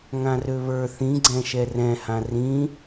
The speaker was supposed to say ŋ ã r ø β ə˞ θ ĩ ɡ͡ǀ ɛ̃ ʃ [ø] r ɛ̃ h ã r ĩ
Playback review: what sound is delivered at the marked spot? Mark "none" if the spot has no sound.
ɛ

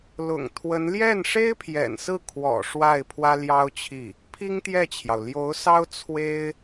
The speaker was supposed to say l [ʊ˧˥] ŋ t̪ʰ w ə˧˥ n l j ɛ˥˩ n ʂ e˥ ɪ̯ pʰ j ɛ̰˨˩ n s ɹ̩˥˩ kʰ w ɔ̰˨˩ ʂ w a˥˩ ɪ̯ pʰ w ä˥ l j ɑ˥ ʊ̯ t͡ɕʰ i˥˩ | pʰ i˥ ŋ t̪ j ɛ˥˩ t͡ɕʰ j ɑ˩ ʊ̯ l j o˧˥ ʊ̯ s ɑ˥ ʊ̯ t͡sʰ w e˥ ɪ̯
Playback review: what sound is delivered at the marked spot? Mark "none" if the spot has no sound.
ʊ̰˨˩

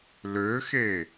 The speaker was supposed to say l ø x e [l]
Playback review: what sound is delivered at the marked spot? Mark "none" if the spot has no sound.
none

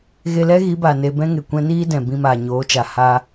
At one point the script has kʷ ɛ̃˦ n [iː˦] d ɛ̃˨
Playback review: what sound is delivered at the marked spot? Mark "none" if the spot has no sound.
iː˦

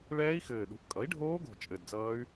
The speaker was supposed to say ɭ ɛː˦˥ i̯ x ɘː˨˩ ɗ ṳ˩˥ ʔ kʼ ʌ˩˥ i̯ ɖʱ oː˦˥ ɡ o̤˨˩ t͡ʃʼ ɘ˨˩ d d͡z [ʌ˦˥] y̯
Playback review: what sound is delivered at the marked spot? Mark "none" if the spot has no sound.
ʌː˦˥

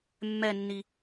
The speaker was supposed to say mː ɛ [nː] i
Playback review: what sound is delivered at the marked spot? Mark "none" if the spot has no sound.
nː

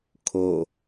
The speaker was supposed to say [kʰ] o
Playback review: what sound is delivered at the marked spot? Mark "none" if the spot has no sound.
kʰ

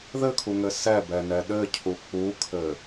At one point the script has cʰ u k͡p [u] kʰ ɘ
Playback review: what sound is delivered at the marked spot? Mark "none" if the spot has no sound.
u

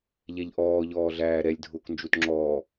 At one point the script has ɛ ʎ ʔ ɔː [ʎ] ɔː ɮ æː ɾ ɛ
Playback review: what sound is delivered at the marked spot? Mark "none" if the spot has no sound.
ʎ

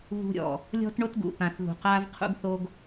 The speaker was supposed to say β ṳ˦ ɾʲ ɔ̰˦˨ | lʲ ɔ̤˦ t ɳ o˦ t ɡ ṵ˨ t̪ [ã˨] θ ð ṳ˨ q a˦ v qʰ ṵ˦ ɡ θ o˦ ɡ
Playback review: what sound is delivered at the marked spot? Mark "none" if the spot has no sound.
ã˨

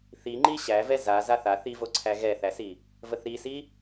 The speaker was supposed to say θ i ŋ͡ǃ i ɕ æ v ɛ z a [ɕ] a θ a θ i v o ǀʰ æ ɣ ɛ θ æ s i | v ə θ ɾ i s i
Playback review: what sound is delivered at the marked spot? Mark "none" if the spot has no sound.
z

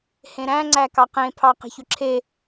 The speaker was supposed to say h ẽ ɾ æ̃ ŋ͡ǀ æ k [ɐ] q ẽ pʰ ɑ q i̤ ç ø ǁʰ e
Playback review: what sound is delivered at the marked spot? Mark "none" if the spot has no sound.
ɑ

